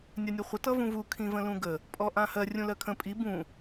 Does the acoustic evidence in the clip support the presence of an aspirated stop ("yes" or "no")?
yes